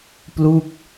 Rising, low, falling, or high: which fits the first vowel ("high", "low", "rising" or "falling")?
falling